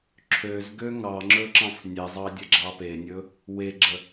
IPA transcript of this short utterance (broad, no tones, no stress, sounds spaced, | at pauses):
ǁʰ ø z ɡ ø ŋ ɑ ŋ͡ǁ ɵ ǁ ẽ sˤ nʲ e zˤ ɑ dʲ ɐ ɡ͡ǁ ɑ p e nʲ ɵ | w e ɡ͡ǁ ə